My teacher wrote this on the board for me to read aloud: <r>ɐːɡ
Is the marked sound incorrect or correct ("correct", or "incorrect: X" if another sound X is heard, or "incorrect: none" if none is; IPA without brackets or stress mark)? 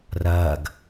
correct